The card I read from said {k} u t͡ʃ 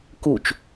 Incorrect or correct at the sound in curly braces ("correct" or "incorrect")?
correct